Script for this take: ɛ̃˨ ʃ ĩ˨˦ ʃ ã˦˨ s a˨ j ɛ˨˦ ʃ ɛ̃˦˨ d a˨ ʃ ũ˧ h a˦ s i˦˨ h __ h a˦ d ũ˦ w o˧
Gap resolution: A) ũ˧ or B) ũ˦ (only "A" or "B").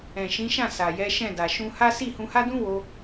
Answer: A